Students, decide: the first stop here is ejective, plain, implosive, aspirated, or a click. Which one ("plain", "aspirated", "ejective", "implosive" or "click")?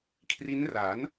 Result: aspirated